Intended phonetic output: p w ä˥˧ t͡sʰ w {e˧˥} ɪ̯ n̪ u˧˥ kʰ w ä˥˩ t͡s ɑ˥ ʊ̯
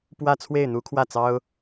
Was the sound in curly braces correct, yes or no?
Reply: no